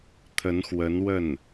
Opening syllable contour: rising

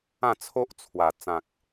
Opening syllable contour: falling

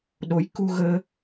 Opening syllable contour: rising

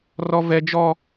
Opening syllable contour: high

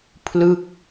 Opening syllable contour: falling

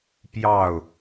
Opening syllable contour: falling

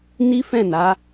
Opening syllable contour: high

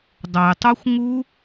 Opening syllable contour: low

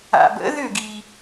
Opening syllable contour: low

